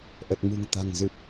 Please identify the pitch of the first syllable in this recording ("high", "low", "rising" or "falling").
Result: low